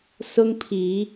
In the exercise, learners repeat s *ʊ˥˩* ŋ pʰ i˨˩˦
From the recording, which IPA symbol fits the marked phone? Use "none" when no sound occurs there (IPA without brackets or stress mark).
ʊ˥